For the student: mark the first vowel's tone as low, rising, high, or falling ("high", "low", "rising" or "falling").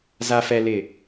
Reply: low